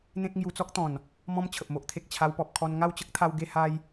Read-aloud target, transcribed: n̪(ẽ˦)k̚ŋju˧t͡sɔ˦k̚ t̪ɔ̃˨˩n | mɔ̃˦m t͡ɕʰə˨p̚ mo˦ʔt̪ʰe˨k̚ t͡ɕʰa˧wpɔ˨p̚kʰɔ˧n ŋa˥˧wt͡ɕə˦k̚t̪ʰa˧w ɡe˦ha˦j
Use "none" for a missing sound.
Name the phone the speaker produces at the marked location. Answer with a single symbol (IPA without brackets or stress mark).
ẽ˦